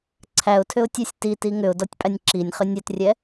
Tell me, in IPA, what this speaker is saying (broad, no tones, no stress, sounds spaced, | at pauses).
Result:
ǀʰ æ ʊ̯ tʰ ʏ ʊ̯ tʲ æ sʲ t i t i ŋ ʏ ʊ̯ d ɔ tʲ pʼ æ nʲ ǁ i nʲ χ ʏ nʲ ɛ t rʲ ɛ